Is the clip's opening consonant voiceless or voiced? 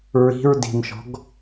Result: voiced